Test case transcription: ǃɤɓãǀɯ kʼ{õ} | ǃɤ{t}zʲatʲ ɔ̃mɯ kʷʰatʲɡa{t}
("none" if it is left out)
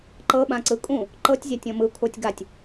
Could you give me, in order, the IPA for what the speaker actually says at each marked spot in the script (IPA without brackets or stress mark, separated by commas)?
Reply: ũ, tʲ, tʲ